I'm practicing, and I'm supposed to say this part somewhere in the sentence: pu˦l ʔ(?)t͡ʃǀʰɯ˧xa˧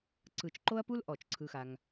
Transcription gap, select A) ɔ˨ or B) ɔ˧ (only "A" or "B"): A